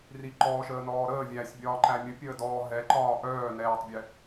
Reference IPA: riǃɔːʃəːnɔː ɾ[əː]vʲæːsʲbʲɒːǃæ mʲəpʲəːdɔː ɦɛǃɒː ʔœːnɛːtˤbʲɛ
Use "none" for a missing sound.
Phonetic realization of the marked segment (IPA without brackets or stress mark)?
əː